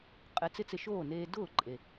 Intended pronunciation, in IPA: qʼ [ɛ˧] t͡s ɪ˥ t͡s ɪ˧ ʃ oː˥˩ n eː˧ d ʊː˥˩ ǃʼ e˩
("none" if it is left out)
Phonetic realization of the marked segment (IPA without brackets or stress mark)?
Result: ɛ˧